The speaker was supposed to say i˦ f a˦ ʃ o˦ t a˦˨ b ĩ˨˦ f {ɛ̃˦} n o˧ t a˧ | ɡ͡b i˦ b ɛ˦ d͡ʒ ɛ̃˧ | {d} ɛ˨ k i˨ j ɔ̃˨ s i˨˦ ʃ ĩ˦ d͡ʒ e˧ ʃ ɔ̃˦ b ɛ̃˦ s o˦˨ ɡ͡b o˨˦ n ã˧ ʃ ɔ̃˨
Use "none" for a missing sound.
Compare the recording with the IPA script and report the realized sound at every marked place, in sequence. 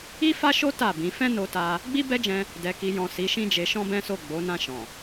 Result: ɛ̃˦, d

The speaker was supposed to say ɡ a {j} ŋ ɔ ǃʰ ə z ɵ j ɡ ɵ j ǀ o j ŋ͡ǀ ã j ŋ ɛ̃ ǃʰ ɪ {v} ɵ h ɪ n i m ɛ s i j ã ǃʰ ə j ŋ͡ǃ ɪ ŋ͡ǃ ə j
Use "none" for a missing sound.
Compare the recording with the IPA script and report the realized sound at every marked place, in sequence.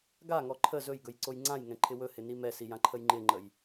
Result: none, w

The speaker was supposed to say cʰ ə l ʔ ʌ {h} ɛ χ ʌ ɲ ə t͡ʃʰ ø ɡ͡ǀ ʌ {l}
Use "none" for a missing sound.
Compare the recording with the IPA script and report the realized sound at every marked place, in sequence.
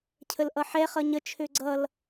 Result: ħ, l

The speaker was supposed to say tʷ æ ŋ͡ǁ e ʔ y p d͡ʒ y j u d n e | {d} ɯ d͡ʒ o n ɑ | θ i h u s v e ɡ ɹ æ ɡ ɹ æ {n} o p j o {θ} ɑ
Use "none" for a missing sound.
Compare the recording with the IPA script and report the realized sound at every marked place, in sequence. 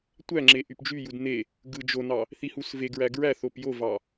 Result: ɡ, θ, v

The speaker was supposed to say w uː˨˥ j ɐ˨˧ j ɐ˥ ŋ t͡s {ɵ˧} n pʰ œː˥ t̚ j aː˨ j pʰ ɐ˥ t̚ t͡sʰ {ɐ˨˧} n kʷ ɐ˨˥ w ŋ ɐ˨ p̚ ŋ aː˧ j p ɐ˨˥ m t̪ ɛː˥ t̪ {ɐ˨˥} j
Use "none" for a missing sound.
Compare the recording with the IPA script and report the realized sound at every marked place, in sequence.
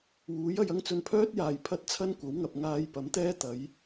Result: ɵ˧, ɐ˥, ɐ˨˥

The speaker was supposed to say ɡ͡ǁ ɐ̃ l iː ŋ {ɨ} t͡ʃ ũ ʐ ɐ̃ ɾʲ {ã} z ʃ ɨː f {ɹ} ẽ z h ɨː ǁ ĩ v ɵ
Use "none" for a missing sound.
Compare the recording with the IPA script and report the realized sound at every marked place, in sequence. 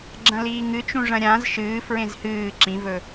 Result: ɨ, ã, ɹ

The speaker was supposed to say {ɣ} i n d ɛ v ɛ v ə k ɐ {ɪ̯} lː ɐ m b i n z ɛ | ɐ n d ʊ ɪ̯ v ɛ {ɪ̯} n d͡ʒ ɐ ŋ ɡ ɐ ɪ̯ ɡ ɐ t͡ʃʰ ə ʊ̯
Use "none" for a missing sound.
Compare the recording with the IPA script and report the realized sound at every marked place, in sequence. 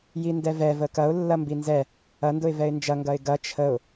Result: j, ʊ̯, ɪ̯

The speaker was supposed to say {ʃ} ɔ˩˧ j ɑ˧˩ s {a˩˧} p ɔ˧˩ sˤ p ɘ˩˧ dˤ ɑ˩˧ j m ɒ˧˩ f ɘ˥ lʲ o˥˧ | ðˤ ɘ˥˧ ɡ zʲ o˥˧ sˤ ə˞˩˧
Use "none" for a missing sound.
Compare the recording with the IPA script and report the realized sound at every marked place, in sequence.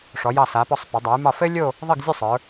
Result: ʂ, a˩˧

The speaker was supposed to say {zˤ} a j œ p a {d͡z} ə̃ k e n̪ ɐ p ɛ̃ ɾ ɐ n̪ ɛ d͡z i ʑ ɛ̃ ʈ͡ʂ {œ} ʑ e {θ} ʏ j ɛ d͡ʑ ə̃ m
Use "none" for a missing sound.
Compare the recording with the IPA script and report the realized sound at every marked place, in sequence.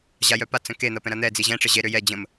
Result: ʑ, t͡s, ə, ɾ

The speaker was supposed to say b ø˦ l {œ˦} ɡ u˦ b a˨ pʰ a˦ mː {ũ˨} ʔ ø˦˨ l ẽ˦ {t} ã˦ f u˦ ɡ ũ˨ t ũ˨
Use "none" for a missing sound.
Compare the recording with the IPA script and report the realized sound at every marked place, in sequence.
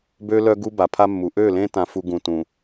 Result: œ˦, u˨, t

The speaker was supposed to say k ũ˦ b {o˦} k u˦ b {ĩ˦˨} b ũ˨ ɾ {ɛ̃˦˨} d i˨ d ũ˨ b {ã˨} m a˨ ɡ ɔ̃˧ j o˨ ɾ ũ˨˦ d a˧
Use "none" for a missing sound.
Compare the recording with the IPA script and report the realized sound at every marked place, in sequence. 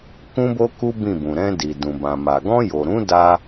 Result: o˦, ĩ˦˨, ɛ̃˧, ã˨

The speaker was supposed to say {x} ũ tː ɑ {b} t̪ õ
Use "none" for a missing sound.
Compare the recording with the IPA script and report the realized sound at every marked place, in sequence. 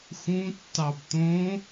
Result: x, b

